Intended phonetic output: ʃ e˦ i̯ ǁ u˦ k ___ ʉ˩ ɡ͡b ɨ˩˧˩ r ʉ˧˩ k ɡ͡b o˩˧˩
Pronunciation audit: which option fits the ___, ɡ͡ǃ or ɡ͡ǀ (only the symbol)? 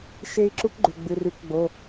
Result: ɡ͡ǃ